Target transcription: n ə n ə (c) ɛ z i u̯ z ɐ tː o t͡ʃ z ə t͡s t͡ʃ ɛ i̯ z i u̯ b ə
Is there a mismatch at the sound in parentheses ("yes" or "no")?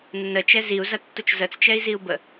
yes